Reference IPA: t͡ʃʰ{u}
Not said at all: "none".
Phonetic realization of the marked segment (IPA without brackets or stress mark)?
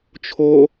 o